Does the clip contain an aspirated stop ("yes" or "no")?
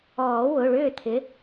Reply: yes